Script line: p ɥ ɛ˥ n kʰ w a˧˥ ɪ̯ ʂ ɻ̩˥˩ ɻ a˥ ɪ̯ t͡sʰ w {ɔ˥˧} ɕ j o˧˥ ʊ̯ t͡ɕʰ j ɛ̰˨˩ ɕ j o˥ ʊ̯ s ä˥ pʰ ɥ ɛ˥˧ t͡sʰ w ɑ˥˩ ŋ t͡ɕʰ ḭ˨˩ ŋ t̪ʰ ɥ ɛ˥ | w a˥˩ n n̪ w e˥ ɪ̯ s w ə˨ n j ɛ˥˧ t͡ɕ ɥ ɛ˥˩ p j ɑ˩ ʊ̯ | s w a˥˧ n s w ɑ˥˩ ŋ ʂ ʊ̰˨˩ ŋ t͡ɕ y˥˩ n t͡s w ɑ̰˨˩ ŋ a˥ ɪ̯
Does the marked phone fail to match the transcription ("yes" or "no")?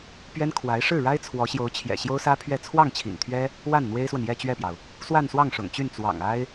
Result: yes